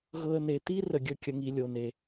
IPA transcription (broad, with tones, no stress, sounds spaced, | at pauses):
ɣ ɤ˦ ə̯ n̪ e˧ t̪ i˦ r ə˧ ɡʲ ə˦˨ kʲ ə˦ ŋ i˦ lʲ o˧ n e˧